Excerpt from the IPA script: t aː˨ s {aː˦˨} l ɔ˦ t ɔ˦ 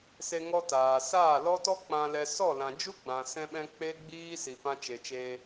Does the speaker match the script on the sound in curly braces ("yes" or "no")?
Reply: yes